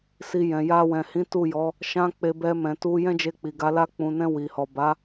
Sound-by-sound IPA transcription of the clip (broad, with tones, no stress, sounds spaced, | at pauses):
s i˧ j ɛ̃˨ j a˧ w ɛ̃˨ h ĩ˨˦ t u˦˨ j ɔ˨˦ | ʃ ã˦ k͡p e˧ b ɛ˧ m ɛ̃˨ t u˧ j ɛ̃˦ d͡ʒ e˧ k͡p i˨ ɡ a˨˦ l a˧ k͡p ũ˨ n ɛ̃˧ w i˨ h ɔ˨ b a˨˦